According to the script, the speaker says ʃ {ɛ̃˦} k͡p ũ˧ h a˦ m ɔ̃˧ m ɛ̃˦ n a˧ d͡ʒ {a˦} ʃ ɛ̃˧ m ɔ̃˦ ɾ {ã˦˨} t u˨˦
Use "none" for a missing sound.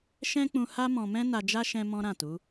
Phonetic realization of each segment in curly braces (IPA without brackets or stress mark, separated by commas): ɛ̃˦, a˦, ã˦˨